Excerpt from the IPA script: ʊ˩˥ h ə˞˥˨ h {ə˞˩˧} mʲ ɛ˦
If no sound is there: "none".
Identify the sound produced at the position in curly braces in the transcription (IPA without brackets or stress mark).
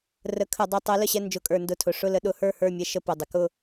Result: ə˞˥˨